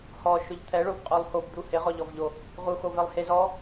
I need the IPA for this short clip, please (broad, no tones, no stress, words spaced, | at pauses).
hɔ ʃʊʎt̪ʰɛɭobqʼolˠ hobd̪u hɪʁɔʎɔvʎo | ʁuxovɛlˠ hez ɔ